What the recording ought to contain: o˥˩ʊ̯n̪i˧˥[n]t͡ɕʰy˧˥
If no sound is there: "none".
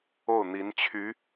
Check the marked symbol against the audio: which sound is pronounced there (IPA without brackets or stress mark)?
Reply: n